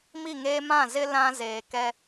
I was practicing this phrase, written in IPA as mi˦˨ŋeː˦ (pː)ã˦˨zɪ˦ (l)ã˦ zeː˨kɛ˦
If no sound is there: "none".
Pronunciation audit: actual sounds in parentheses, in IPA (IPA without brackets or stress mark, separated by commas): m, l